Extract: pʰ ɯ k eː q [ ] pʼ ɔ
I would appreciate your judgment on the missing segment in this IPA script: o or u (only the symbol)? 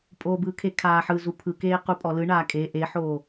u